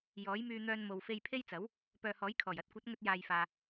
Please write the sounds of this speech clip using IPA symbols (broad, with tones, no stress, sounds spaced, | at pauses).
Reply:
j ɔː˨˥ j m yː˧ n̪ œː˧ n m o˨ w f e˧ j pʰ e˥ j t͡s ɐ˨˥ w | p œː˨ h ɔː˨˥ j kʰ ɔː˨˩ j ɐ˧ t̚ kʷ ɐ˨˥ t̚ ŋ ɵ˧ t̚ j aː˨ j f aː˨